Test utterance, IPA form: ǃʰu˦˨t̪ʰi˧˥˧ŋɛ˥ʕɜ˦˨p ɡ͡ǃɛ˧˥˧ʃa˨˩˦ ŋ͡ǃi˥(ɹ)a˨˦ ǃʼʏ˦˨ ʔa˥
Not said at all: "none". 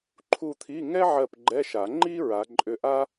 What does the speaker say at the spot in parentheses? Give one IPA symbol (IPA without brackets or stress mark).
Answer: ɹ